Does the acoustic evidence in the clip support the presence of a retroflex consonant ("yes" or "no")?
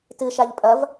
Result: no